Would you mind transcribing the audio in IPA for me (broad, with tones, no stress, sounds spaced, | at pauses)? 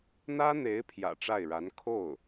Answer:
n̪ ä˥ n̪ e˧˥ ɪ̯ pʰ j ä̰˨˩ ʈ͡ʂ a˥˩ ɪ̯ ɻ a˧˥ n kʰ o˥˩ ʊ̯